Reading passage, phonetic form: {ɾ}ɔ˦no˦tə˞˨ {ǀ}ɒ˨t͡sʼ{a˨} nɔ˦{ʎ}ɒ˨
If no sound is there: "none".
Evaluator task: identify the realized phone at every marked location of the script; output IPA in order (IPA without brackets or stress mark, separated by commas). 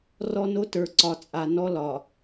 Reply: r, ǀ, a˨, l